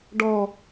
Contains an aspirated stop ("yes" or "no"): no